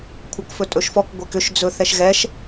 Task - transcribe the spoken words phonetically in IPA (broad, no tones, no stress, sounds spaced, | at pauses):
kʷʰ ɤ k f ɵ tʼ ɵ ʃ f ɔ k ɡʷ ɛ k ʏ ʃ d͡z ɵ θ ɛ ʃ ɣ ɛ ʃ